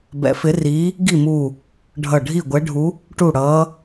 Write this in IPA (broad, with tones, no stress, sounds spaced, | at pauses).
b ɛ̰˨˥ f ɪ˨˥ r iː˨˥ | ɡ i˥˩ m uː˧˩ | ɖʱ ʌ˧˩ ɖʱ i˥˩ ɡʷ ɛ˨˥ ɖʱ u˨˥ | ʈ u˥˩ ɽ ʌː˨˥